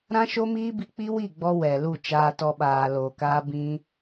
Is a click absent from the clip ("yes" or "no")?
yes